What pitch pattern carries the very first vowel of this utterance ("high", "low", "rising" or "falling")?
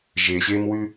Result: low